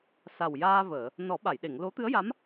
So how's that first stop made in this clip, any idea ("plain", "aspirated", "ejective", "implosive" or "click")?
implosive